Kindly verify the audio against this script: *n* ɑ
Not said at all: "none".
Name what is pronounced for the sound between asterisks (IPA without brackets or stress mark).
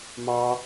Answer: m